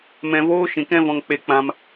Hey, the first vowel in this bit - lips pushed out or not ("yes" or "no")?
no